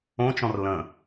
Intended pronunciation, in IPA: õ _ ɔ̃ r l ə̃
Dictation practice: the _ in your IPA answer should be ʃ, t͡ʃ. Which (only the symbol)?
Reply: t͡ʃ